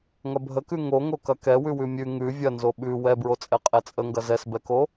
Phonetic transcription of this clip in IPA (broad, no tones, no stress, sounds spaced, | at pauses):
ŋ ɐ bʱ ə k ʉ ŋ o ŋ o k ɐ k ɛ w ʉ w ʉ mʲ ʉ ŋ ʉ vʲ ɐ n z o ɓ ʉ w ɛ b ɹ o t͡sʼ ɛ qʼ ɛ t͡sʼ ə ŋ ɡ ɐ z ɛ s b ɛ k o